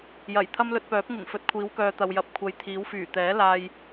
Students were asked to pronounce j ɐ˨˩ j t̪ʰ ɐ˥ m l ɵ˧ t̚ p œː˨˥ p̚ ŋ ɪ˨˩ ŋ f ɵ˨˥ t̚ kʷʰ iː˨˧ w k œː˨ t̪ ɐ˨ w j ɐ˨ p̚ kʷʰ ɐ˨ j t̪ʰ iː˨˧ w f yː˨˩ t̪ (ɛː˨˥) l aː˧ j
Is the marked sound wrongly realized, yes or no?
no